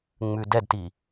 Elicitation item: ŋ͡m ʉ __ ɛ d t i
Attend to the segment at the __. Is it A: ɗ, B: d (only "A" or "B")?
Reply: B